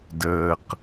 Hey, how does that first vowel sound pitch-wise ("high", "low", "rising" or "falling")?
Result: low